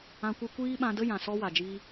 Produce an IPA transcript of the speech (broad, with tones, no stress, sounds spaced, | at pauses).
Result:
ã˧ kʷ ɨ˧ kʷ iː˦ ɓ ã˧ d ə˦ j ã˨ s ɔ˦ w a˨ d͡ʒ iː˧